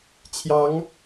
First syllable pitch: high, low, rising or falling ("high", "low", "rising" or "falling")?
rising